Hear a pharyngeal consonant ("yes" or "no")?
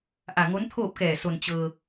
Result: no